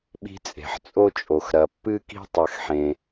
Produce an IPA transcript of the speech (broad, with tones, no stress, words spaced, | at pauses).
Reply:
ɓi̤˦t͡sʼe̤˩ħt͡sʼo˥t͡ʃʼo˩x ɾɐ˩pːɨ˥ ki̤˥ tˤɐ˨xħẽ˩